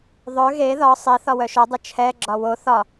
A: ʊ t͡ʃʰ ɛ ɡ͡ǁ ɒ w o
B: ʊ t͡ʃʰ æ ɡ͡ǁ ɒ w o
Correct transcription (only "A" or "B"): A